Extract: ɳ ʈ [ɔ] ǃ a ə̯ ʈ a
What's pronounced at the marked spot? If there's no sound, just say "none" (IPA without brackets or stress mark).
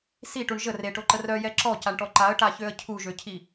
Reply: ɔ